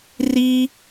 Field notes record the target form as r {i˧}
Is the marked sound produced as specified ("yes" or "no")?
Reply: no